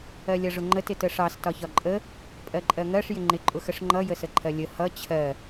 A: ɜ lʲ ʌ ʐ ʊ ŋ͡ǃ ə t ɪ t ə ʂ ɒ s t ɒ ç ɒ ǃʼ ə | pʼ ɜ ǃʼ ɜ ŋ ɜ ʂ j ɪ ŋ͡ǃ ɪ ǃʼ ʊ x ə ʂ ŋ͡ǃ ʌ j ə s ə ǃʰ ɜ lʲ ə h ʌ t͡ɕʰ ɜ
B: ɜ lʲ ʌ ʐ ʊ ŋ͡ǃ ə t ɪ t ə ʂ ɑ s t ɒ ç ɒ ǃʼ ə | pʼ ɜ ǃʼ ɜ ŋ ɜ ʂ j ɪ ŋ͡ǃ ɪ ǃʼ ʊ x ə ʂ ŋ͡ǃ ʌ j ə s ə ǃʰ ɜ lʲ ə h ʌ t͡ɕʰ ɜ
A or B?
B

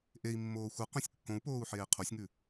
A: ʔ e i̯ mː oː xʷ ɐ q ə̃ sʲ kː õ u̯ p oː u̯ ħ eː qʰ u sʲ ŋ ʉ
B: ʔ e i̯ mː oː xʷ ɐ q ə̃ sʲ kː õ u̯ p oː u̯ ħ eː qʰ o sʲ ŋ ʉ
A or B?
B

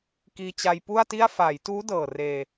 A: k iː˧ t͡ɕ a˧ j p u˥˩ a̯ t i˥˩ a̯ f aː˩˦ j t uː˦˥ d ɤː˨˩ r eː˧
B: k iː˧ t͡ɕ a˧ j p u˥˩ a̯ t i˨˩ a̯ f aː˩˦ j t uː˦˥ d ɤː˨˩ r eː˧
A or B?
A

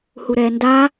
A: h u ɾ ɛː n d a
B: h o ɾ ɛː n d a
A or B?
A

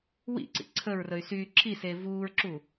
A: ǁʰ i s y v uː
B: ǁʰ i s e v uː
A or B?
B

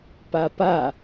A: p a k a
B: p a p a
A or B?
B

